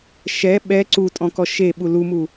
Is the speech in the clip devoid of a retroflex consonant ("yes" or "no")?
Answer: yes